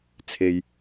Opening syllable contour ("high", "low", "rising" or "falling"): low